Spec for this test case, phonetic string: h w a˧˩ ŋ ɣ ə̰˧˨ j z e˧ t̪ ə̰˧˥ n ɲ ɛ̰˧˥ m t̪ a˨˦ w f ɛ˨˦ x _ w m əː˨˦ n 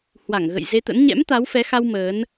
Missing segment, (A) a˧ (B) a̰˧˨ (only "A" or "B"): A